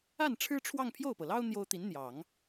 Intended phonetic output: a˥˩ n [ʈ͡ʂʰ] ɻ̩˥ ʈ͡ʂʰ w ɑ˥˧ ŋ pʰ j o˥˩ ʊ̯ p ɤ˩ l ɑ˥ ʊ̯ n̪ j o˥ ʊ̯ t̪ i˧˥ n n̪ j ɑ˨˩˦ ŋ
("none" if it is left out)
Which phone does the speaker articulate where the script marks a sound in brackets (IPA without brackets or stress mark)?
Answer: ʈ͡ʂʰ